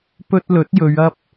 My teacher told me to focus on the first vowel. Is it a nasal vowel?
no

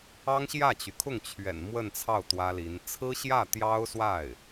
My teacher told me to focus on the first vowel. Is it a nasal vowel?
no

